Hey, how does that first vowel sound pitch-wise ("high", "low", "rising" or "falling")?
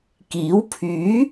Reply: rising